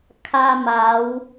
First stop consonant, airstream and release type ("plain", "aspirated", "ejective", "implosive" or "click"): aspirated